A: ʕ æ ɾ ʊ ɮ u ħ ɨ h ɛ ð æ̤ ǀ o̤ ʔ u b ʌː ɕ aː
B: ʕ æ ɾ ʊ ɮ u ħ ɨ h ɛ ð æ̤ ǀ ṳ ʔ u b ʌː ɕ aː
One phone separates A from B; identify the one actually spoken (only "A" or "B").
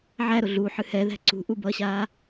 B